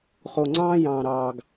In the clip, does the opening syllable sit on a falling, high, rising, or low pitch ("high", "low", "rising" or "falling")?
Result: low